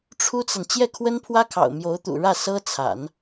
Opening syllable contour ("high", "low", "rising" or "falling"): high